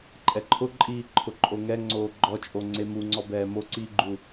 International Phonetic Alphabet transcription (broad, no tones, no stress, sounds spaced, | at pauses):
ǃʼ ɛ ǃʰ ʊ ǃʼ iː ǃʰ ʊ ǃʼ o ŋ ɛ ŋ͡ǀ oː ɡ͡ǃ ɔ t͡ʃʼ o ŋ͡ǀ e m u ŋ͡ǀ ɔ b ɛː m o ǀ iː ɡ͡ǃ u